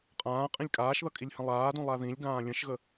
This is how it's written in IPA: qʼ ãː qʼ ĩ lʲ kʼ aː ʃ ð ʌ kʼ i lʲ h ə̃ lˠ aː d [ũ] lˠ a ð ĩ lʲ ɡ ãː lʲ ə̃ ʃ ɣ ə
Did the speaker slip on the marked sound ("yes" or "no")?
no